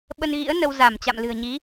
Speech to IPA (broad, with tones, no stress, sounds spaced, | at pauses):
ɓ ə˧ n ɣ ḭ˧˥ ə̯ n ə˧ w z a˧˩ m t͡ɕ a̰˧˨ m l ɨ̤˨˩ ə̯ ɲ i˨˦